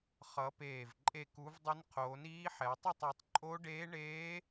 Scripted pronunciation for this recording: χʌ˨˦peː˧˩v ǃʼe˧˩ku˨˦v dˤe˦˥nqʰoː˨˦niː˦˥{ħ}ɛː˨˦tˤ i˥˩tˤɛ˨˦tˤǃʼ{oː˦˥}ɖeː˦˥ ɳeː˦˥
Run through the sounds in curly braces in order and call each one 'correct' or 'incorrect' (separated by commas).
correct, incorrect